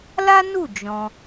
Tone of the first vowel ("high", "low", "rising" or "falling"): high